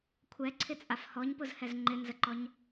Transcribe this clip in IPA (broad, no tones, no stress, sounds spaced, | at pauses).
kʷʰ ɛ ǀʰ ɪ t͡sʼ a f h ɔ ɲ p ʊ z h ɛ z ŋ͡ǃ ɪ n z ə ǃ ɔ ɲ